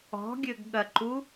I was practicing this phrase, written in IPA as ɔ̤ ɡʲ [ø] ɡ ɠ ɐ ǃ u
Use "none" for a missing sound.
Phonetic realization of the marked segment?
ø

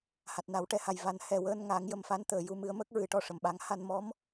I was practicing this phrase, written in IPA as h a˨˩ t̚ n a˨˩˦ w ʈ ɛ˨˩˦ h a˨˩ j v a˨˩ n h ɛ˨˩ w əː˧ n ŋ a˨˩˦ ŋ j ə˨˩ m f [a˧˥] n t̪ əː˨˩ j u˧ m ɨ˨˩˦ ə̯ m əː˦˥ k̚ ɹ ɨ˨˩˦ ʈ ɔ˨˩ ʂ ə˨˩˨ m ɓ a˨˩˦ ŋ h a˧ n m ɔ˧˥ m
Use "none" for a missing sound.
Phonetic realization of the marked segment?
a˧˥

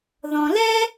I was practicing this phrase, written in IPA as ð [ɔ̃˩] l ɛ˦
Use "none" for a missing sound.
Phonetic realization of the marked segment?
ɔ̃˩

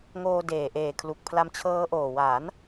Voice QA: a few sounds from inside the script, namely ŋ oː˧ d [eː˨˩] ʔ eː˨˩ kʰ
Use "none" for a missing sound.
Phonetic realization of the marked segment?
eː˨˩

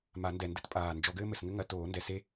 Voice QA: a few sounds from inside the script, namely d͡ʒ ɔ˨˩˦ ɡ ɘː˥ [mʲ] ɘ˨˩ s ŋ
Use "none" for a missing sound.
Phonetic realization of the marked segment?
m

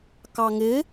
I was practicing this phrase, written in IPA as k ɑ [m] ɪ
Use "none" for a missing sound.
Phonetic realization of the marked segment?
ŋ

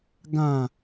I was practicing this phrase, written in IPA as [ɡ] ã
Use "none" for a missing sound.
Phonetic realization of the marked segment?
ɡ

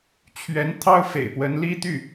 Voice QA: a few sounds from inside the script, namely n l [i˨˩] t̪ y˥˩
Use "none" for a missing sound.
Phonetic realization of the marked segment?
i˥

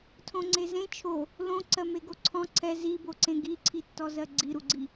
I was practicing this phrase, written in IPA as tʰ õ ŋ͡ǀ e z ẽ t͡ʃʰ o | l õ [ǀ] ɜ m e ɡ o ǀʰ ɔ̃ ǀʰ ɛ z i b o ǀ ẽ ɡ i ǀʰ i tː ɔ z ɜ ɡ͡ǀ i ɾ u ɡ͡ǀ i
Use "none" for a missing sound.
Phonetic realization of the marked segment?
ǀ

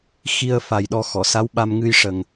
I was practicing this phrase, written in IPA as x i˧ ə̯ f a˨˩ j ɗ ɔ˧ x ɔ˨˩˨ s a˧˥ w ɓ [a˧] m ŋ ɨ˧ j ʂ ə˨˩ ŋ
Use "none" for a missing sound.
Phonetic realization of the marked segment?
a˧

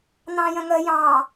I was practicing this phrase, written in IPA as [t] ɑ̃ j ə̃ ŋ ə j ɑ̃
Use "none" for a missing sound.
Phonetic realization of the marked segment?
n̪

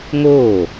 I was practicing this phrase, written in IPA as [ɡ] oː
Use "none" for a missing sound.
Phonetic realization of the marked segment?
ŋ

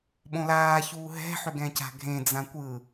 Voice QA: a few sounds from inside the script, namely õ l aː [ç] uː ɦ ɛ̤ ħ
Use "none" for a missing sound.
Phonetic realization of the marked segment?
ç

